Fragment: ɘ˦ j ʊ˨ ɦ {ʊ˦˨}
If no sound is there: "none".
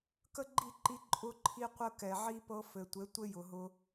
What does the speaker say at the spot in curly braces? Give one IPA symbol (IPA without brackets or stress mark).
ʊ˧